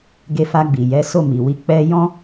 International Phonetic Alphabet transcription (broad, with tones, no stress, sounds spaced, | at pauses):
ɡ e˧ f a˧ ɡ͡b i˨ j ɛ˨˦ s o˦˨ m i˨ w i˧ k͡p ɛ˧ j ɔ̃˦